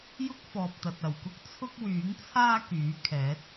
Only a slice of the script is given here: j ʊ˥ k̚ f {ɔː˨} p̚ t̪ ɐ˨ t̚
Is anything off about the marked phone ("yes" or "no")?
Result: no